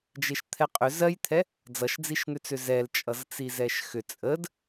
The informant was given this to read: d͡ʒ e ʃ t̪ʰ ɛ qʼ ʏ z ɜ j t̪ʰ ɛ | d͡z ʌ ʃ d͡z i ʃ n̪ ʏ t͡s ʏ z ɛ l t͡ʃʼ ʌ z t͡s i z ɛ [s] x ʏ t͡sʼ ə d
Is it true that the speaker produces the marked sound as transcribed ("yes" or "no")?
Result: no